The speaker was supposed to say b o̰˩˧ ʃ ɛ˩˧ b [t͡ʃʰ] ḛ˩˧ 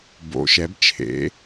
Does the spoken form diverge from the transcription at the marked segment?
no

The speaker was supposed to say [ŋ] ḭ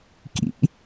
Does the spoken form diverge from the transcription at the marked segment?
yes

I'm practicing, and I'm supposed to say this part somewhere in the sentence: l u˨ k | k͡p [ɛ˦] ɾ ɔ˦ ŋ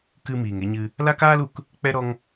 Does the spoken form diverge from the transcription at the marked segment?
no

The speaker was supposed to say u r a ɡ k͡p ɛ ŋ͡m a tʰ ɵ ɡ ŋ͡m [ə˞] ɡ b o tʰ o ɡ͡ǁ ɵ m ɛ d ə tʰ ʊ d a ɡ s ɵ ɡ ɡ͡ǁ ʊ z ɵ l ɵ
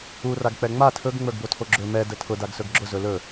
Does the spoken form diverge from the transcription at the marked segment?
no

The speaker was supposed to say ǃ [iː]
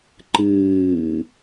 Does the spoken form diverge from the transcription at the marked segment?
yes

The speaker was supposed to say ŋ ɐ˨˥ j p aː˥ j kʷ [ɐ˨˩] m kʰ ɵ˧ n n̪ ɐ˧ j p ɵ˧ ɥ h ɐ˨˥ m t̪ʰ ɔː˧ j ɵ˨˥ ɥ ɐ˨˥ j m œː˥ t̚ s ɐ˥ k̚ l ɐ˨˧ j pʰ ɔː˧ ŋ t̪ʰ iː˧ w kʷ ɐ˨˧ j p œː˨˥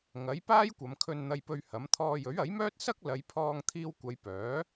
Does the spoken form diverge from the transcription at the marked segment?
yes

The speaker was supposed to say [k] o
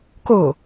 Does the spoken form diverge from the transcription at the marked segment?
no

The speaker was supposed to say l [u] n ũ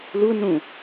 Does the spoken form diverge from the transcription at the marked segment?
no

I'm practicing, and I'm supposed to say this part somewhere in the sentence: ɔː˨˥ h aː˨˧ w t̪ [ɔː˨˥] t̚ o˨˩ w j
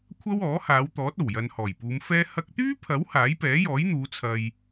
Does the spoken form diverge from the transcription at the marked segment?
no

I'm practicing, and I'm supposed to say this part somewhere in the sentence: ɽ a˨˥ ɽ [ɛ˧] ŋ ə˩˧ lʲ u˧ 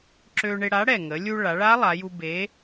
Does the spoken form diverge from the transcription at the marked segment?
yes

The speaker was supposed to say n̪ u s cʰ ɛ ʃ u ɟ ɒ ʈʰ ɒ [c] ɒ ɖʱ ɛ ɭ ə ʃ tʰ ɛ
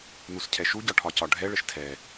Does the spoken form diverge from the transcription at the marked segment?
no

